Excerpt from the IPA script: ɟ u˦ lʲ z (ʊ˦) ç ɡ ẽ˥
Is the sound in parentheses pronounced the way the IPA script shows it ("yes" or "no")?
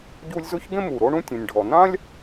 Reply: no